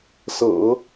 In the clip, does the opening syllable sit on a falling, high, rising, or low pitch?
low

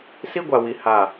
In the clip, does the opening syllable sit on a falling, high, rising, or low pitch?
high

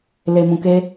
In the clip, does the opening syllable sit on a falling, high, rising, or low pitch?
low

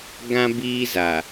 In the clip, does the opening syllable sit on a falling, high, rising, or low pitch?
high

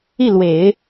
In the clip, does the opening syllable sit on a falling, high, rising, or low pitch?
falling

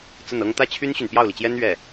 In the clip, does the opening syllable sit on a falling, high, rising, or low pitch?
falling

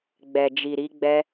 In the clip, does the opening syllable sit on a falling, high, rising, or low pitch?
low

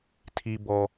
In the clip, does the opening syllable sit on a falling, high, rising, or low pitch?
low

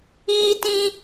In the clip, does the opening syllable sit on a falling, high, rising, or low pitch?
high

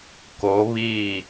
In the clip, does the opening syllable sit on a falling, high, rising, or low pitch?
rising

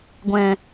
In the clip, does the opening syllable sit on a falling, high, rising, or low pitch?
low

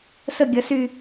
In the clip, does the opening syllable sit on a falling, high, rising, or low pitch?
falling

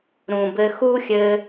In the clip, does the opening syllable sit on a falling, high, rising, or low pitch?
low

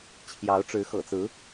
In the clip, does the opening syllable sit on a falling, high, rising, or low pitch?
rising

